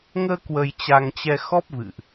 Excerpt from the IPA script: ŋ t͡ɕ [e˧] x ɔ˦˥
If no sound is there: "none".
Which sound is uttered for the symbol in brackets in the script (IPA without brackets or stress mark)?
ɛ˧